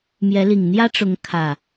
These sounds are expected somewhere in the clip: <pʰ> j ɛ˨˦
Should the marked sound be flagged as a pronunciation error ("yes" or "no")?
yes